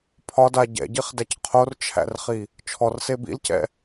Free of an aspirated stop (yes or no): no